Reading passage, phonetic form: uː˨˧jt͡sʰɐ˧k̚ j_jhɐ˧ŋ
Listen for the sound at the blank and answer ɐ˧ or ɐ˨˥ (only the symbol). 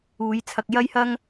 ɐ˧